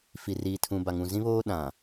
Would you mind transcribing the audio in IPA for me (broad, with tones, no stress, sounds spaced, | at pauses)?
f i˨ r iː˨ tʰ ũ˨ b a˨ ŋ ũ˨ z ĩ˦ β oː˦ ɗ ã˨